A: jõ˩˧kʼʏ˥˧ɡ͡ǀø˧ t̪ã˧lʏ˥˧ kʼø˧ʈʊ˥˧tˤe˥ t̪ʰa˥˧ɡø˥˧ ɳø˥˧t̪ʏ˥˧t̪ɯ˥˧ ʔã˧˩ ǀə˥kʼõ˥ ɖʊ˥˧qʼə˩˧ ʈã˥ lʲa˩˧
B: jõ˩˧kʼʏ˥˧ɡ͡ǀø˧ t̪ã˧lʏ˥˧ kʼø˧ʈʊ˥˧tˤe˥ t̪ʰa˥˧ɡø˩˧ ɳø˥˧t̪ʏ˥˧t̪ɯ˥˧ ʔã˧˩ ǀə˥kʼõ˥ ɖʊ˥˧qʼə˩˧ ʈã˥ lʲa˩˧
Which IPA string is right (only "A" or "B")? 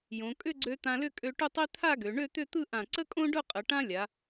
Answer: B